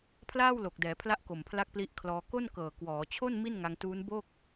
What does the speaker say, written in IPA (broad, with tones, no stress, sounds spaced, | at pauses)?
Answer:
pʰ l aː˥˩ w l o˨˩ k̚ d ɛː˩˦ pʰ l a˦˥ ʔ k o˨˩ m pʰ l a˦˥ k̚ p l i˦˥ ʔ kʰ l ɔː˧ k o˥˩ n k ɤː˨˩ k w ɔː˩˦ t͡ɕʰ o˥˩ n m i˥˩ n ŋ a˧ ŋ t uː˦˥ n b o˥˩ k̚